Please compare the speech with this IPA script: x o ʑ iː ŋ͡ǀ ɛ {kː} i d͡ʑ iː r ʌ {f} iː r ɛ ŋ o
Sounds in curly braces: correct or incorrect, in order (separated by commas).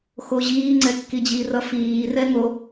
correct, correct